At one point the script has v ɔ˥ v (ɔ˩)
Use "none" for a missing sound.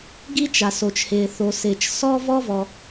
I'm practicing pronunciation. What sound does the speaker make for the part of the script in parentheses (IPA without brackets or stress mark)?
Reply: ɔ˩